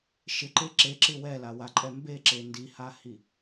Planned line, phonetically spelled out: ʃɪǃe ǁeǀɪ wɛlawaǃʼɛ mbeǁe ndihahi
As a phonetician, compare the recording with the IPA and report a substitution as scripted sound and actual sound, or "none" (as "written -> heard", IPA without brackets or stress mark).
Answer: ǀ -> ǁ